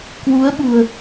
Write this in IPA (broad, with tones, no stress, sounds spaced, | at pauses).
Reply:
k w u˨˦ ə̯ ɓ ṳ˨˩ ə̯